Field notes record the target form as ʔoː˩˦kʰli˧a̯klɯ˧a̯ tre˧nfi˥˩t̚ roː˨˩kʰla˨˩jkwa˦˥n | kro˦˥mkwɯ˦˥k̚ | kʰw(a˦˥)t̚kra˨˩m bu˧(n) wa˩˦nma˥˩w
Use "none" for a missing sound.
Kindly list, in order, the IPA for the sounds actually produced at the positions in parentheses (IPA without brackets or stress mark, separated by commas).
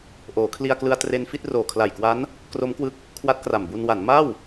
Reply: a˦˥, n